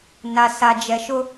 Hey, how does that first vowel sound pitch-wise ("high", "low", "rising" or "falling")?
low